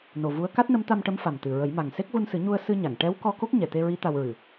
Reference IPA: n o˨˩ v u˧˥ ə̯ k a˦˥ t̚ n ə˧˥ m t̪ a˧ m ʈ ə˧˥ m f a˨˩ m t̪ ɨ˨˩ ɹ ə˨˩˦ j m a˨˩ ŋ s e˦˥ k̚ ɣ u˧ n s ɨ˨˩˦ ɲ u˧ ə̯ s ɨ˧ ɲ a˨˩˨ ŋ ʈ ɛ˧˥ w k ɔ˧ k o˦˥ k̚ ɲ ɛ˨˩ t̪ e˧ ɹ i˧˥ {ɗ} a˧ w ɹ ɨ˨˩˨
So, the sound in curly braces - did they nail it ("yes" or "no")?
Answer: no